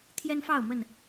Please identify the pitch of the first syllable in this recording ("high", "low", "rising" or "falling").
high